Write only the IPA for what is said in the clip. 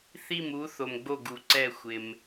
θ i˥˩ m u˨˥ θ o˨ m ɡ͡b o˥˩ ɡ u˨˩˦ ǀ ɛ˥˩ xʷ ɪ˨ m

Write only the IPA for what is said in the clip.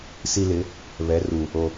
s i˦ l ɪ˨˦ | β ɛ˨˦ r u˨ | o˨

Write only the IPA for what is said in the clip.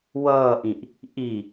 w ʌː ʔ ĩ ʔ | ʔ i

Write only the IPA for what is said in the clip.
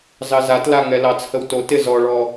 z ɑ z a t l a ŋ ɛ l ɑ t͡s h ə w t o t ɪ z ɔ ɭ ɔ

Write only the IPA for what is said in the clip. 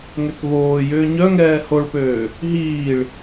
ŋ ɛ k β oː j ʏː ɲ œ ŋ ɛː h o ɭ p øː | ɦ iː ɭ

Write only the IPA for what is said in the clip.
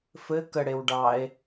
f ɘ k ə ɽ e w ɖ ɑ e̯

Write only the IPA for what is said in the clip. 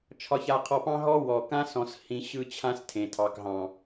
t͡ʃʰ ɒ˦ ç a˦ qʰ ɔ˦ p ɑ̃˦ ɦ ɔ˦ w ɔ˨ k ã˦ s ɔ̃˧ s h ĩ˧ ɕ ɯ˦ t͡ɕʰ ã˦ s tʰ ẽ˨ tʰ ɑ˨ k ɦ ɑ̃˨

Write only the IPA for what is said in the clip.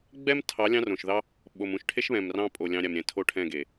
ɡ͡b ɛ˦ m tʰ ɑ˨˦ lʲ ɑ̃˦ r õ˨ ʃ ð ɑ˦ | ɓ o˨ m ũ˧ ʃ ʈʰ e˦ ʃ β ɛ̃˨ m r ɑ̃˧ pʼ o˨ lʲ ɑ̃˧ ɾʲ a˨ m ɾʲ ɛ̃˨ tʰ o˦˨ ʈʰ ɛ̃˦˨ ɡ e˨

